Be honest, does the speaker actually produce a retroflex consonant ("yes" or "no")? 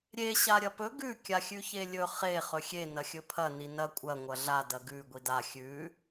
no